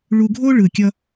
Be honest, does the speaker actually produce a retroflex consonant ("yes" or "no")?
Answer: yes